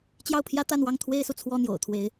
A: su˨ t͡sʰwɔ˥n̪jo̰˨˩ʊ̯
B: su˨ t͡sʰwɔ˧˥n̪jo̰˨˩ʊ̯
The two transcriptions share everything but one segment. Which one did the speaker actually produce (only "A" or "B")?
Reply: A